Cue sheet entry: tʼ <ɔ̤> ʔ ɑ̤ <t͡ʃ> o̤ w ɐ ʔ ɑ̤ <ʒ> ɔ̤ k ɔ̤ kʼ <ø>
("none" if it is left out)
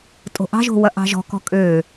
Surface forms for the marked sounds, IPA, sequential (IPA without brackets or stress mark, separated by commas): o̤, ʒ, ʒ, ø